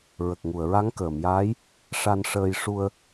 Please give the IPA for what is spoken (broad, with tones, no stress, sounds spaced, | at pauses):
ɹ ə˨˩ k̚ ŋ u˨˩˨ ə̯ ɹ a˧˥ ŋ k əː˨˩˨ m j aː˧˥ j | ʂ a˧ n ʂ əː˧ j ʂ u˧ ə̯